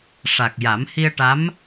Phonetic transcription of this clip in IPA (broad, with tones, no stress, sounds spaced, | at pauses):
ʂ a˨˩ k̚ j a˨˩˦ m h i˧ ə̯ ʈ a˧˥ m